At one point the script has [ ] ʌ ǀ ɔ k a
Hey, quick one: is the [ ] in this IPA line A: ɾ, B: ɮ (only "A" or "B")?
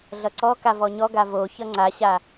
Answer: B